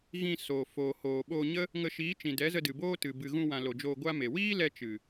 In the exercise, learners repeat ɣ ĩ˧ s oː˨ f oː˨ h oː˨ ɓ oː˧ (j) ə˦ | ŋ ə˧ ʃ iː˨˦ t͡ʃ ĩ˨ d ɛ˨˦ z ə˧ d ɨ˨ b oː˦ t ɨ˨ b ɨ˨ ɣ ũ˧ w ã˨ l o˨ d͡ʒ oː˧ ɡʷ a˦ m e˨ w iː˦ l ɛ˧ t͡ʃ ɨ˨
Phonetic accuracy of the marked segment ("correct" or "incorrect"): incorrect